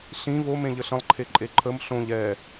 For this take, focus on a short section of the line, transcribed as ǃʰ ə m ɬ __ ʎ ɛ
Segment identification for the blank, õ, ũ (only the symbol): õ